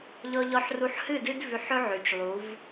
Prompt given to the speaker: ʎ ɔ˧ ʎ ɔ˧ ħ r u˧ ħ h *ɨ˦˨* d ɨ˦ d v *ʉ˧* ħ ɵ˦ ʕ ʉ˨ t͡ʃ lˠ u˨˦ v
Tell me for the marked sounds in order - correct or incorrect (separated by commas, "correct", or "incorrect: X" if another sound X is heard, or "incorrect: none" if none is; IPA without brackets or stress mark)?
correct, correct